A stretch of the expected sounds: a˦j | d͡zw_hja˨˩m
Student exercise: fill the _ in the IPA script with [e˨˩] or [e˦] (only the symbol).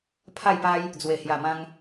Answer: e˨˩